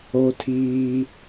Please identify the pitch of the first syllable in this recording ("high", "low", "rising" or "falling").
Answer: high